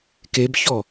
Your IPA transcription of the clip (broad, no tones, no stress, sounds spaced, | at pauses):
k e b ç ɔ